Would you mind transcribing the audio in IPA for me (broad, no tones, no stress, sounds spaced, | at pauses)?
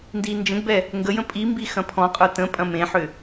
n d i n d͡ʒ ə̃ ɡ b ɛ | ŋ ɡ ə j ə̃ pʼ i m b i x ɐ̃ pʰ ɔ̃ qʼ ə˞ t ə̃ pʼ ɐ̃ m ẽ ħ ʏ